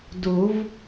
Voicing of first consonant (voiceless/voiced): voiced